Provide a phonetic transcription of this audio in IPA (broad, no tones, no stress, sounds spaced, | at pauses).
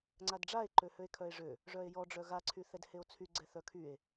ŋ͡ǀ a d ɖ͡ʐ a e̯ ǃ ø h ø e̯ kʰ œ e̯ ʐ ø | ʐ œ e̯ j ɔ ɖ͡ʐ œ ɣ a ǀʰ y θ ɛ d h e o̯ t͡sʰ y ɡ͡ǀ ɛ θ œ kʰ y e̯